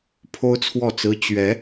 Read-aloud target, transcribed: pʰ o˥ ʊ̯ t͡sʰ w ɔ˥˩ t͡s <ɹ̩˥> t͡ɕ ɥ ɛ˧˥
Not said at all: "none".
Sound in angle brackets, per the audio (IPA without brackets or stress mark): ɹ̩˥